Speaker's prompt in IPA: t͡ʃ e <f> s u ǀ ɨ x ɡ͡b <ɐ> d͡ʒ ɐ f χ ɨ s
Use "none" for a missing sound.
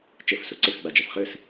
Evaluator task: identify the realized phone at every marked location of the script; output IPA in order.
f, a

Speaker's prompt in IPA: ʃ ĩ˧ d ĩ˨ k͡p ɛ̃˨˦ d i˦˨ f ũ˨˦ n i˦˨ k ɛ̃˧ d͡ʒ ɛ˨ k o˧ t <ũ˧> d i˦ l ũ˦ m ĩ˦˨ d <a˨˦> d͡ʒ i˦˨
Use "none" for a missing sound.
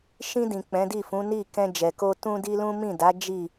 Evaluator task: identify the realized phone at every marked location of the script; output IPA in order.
ũ˦, a˨˦

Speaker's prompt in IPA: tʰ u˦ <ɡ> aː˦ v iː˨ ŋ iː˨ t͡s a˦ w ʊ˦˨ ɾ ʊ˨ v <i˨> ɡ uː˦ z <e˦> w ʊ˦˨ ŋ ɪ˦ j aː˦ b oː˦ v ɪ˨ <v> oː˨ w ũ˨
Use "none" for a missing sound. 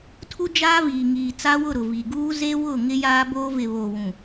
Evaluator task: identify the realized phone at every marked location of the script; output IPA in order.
d͡ʒ, i˨, e˦, β

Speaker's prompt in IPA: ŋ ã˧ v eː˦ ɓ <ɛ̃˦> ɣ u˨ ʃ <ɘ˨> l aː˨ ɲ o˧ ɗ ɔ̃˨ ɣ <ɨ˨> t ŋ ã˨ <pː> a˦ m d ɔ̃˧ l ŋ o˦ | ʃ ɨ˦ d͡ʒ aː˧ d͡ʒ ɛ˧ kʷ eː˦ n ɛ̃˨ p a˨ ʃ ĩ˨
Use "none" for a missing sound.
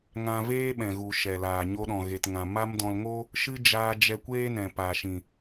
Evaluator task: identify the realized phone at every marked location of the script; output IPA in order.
ɛ̃˨, ɛ˨, e˨, m

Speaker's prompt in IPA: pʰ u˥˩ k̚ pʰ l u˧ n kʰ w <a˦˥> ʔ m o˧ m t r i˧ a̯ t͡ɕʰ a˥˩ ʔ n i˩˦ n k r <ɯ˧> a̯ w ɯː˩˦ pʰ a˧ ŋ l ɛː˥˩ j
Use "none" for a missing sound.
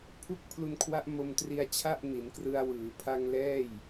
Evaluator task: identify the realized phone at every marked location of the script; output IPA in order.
a˦˥, ɯ˧

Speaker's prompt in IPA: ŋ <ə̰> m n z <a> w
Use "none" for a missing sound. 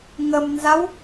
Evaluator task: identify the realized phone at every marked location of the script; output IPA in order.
ə, a

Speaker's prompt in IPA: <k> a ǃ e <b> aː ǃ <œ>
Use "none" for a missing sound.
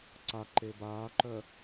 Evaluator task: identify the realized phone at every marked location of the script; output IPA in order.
ǀ, b, œ

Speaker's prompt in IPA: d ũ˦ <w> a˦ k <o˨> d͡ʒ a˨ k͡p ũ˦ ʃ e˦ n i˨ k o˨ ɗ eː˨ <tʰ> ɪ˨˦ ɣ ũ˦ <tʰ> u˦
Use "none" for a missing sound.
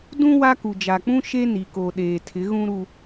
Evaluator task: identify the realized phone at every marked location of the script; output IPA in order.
w, u˨, tʰ, ɾ

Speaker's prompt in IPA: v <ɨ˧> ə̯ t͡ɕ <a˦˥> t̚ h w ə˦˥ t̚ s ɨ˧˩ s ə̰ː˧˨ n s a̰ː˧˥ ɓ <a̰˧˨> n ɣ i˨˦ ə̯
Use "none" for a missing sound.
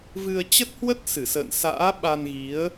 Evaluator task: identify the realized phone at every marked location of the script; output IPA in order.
ɨ˧, ə˦˥, a˧

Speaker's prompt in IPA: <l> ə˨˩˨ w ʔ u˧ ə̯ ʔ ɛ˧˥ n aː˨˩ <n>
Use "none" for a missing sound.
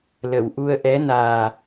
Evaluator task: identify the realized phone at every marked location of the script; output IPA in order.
l, none

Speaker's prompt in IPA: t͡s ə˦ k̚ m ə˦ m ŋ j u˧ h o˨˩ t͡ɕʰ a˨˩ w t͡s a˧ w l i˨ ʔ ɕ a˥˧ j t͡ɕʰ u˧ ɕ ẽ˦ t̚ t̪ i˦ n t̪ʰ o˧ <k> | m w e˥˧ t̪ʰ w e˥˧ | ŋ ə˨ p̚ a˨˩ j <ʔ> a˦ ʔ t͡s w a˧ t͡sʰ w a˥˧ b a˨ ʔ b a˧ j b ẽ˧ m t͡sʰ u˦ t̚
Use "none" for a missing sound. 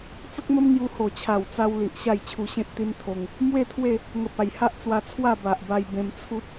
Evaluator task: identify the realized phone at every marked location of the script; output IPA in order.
ŋ, h

